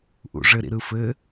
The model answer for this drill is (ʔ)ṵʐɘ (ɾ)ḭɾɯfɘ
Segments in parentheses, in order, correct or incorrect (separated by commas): correct, correct